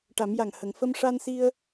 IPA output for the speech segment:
ʈa˨˩˦mja˨˩ŋ hə˨˩˨ŋ fə˧mʂa˧nsi˧ə̯

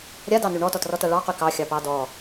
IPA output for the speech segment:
ɾʲadɑny ɳɔtɔtrɔta ɭɑqy kɑxʲɑpɑ dɔ

